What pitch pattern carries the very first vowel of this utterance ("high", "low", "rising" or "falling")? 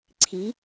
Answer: rising